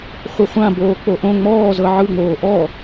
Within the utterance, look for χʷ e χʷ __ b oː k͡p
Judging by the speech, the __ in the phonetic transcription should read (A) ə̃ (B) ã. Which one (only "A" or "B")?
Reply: B